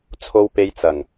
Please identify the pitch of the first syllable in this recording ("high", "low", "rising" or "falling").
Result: high